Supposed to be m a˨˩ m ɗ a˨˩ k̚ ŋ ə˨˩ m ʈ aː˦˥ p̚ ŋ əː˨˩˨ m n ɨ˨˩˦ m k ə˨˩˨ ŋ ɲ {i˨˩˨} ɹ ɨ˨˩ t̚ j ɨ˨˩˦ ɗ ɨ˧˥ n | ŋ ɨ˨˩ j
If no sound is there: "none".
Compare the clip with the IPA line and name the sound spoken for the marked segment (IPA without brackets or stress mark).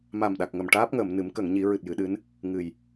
i˨˩˦